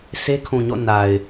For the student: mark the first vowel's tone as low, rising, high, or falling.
high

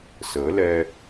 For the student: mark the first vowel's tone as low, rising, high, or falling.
rising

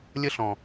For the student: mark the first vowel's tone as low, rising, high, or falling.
high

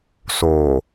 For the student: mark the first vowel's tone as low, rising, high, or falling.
low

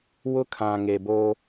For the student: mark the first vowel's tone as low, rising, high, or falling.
high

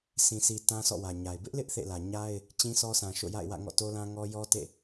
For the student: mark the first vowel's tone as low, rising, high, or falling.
low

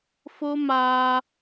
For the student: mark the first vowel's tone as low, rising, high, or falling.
high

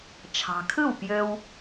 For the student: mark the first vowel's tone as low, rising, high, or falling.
low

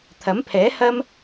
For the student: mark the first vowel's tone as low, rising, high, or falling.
rising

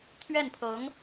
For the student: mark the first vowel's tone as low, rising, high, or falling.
falling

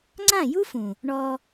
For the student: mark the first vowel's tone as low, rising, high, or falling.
falling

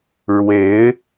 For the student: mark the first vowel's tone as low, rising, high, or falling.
rising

